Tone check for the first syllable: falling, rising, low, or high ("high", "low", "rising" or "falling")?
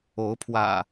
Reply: rising